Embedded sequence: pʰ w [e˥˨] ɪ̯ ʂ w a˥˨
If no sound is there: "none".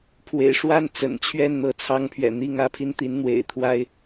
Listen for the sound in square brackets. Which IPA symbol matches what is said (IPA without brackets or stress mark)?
ḛ˨˩